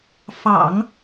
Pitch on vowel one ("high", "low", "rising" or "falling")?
low